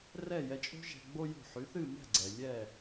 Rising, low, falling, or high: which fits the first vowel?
falling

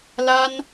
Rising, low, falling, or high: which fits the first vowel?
high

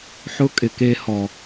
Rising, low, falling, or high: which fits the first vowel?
high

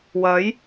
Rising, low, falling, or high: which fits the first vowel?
rising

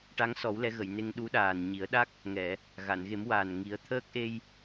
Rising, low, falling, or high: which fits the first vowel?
rising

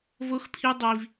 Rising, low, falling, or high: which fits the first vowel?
high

